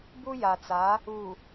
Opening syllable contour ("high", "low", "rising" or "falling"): high